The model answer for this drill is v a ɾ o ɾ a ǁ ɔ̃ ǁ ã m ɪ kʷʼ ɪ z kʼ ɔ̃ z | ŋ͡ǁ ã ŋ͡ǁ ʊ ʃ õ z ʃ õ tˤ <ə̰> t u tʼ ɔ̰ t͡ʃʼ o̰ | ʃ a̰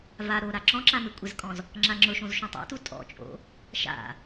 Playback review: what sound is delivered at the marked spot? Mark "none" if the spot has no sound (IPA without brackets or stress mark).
a̰